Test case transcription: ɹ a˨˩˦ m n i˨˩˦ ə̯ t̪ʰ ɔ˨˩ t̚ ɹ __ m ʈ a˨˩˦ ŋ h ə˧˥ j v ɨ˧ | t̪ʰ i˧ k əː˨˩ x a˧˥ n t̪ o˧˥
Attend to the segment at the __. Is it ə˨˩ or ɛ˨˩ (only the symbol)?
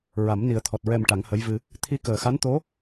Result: ɛ˨˩